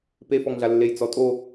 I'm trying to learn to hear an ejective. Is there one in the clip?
yes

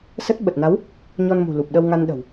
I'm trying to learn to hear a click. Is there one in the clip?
no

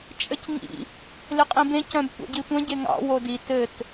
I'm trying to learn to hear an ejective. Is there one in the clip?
yes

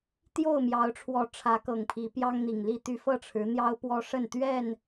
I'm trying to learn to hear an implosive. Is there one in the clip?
no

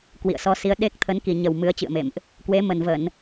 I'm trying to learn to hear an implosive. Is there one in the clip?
yes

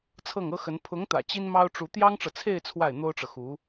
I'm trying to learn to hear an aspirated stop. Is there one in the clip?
yes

